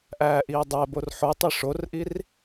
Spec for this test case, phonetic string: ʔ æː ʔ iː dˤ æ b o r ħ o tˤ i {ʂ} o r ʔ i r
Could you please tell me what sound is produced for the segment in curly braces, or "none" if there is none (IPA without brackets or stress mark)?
ʂ